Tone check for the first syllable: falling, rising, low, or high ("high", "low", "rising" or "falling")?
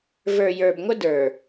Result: low